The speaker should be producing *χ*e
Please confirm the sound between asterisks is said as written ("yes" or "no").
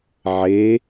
no